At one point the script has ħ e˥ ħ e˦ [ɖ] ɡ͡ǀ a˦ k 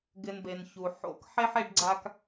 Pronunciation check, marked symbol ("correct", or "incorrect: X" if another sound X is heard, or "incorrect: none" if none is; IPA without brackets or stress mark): correct